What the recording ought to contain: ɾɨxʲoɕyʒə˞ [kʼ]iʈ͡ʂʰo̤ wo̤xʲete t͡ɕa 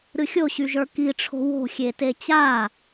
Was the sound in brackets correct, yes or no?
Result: no